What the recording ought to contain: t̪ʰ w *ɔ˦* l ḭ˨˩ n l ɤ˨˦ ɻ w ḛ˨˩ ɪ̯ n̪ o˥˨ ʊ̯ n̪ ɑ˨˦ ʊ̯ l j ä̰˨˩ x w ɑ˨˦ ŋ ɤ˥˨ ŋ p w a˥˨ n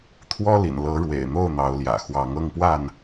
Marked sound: correct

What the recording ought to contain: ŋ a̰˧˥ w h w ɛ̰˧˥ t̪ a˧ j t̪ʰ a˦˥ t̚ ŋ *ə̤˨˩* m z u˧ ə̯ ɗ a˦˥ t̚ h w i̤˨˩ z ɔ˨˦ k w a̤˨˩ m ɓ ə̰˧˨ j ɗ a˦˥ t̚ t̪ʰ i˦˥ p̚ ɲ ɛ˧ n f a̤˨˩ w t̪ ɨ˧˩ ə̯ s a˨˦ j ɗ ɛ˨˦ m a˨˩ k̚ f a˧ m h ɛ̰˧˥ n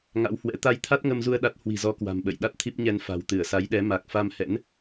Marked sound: incorrect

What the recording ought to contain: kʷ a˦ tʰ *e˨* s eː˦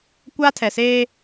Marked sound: incorrect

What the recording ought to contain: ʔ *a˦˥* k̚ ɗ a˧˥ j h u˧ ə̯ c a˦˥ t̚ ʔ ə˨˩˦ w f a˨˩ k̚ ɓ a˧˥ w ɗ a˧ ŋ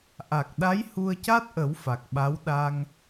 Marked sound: incorrect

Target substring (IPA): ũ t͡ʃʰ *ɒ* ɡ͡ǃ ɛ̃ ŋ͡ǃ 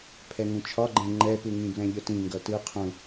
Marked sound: correct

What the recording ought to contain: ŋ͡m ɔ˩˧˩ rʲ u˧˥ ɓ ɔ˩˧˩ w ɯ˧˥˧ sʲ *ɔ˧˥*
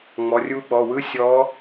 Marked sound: correct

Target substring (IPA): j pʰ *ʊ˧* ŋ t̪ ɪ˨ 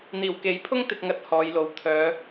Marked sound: incorrect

